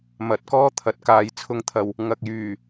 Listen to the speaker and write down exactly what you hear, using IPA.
m ɐ˨˥ t̚ k ɔː˥ t̪ʰ ɐ˨˥ t̚ k aː˨˧ j t͡sʰ ʊ˧ ŋ t̪ʰ ɐ˨ w | ŋ ɐ˨ k̚ j yː˨˩

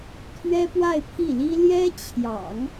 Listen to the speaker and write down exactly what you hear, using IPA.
t̪ʰ ɥ ɛ˥ p w a˥˧ ɪ̯ pʰ i˥˩ l i˥ l j ɛ˥ t͡ɕʰ j ɑ̰˨˩˦ ŋ

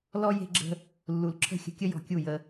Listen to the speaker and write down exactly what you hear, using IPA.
l ɔ˦ j e̤˦ ɡ͡ǁ ə̤˦ | lː u˨ l ǁʰ ə̤˦˨ xʲ ə̤˧ kʲ ə˦ j ɔ̤˧ kʲ u˦˨ j ə˧

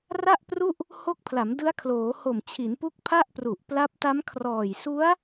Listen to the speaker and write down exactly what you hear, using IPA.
r a˥˩ ʔ p r u˥˩ ʔ | h o˦˥ k̚ pʰ l a˩˦ m d ɯ˦˥ a̯ kʰ l oː˩˦ h o˨˩ m t͡ɕʰ i˩˦ n p u˦˥ k̚ pʰ a˥˩ ʔ p r u˨˩ ʔ p l a˦˥ p̚ t a˦˥ m kʰ r ɔː˨˩ j s u˦˥ a̯

